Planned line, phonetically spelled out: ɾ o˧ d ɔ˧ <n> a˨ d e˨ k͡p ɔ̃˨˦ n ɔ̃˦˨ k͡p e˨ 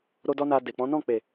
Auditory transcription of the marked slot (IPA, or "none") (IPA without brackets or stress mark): n